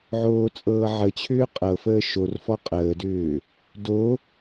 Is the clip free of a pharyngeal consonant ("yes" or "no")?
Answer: no